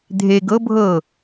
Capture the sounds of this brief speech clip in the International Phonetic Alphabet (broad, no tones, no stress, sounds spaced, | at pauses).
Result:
dʱ e ɡ ɤ bʱ ɤ